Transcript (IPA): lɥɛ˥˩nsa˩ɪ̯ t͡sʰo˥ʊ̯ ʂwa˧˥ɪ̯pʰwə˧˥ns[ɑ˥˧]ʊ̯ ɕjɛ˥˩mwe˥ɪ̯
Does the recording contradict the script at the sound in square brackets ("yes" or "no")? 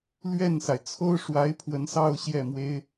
no